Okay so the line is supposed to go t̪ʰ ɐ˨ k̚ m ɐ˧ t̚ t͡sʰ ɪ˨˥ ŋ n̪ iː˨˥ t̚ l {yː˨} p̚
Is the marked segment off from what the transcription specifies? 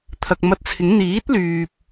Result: no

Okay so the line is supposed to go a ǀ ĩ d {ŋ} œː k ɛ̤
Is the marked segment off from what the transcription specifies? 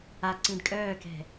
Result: yes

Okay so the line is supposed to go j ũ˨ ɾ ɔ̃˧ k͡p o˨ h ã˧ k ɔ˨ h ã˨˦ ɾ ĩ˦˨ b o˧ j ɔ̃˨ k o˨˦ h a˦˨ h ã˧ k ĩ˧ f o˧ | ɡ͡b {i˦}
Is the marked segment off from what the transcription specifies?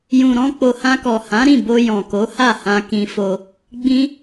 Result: yes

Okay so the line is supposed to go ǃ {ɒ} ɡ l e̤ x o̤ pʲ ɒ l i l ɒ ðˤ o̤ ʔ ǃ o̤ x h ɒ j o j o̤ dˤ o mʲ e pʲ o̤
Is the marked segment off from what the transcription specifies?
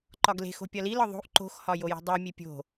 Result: no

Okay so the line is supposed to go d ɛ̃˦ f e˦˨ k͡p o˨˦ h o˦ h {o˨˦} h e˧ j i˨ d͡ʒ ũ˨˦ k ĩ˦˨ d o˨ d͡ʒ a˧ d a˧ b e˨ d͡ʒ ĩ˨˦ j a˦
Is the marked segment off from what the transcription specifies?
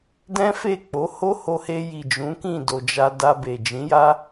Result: yes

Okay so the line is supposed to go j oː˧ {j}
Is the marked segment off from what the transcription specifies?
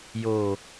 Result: yes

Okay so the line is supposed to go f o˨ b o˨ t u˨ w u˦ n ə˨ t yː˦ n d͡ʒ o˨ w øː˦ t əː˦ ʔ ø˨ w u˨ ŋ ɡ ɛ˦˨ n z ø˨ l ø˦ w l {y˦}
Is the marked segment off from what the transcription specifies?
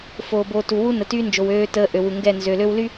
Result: no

